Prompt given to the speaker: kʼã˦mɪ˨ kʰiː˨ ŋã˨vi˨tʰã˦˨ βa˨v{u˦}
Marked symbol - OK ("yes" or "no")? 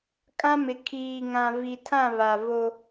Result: no